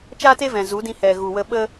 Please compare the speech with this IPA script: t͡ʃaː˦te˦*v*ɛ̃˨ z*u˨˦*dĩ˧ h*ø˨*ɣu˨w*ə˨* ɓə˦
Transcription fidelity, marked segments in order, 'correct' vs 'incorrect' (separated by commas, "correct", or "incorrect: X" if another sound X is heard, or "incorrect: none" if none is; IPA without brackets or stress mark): correct, correct, incorrect: ɛ˨, incorrect: ə˧